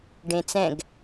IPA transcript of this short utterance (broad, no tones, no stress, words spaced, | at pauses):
ɖẽt͡sɛ̃ɡ